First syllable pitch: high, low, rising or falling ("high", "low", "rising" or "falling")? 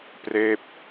falling